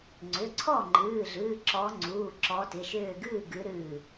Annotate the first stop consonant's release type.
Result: click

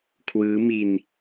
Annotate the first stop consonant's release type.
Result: aspirated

